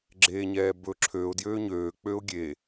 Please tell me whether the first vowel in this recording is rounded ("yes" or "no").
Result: no